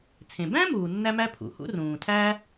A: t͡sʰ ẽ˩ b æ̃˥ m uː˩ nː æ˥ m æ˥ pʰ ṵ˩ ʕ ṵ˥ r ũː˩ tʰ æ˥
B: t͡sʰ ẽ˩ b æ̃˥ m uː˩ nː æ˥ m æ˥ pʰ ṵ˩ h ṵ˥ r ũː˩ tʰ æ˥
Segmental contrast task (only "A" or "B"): B